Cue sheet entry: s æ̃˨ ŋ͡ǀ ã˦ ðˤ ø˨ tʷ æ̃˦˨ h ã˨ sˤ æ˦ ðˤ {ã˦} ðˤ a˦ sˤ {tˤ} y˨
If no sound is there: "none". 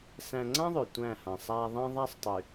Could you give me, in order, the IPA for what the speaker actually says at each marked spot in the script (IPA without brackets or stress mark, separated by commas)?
ã˦, tˤ